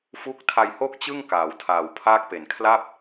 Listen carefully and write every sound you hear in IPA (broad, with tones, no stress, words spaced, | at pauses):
fu˦˥k̚ tʰa˧jho˥˩k̚t͡ɕɯ˥˩ŋ kaː˩˦wtʰaː˨˩wpʰaː˥˩k̚pe˨˩n kʰla˥˩p̚